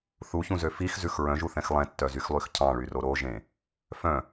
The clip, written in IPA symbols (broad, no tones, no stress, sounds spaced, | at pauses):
θ u ç ũ z ø f i x z ʉ x ɹ œ̃ ʒ u θ ɛ̃ x lˠ ɛ̃ tː œ z y x lˠ y x cʰ ɑ̃ ɭ y r o ɾ o ʒ ẽ | f œ̃